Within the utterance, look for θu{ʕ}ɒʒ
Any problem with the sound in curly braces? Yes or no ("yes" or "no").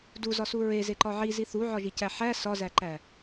no